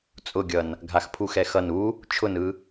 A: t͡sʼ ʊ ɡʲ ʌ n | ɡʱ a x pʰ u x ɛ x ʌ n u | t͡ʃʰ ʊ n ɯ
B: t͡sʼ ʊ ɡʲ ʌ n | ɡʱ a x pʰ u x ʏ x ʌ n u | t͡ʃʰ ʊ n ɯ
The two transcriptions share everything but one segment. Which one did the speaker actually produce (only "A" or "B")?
A